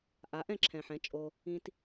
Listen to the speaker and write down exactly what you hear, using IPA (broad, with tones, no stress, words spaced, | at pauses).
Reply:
ʔa˩˥ ʔɛ̃˥˩ǁʰɛ̃˨ħɛ̃˩˥ t͡ʃʼo˨ | ĩ˨t